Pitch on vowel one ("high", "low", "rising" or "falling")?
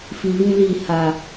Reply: low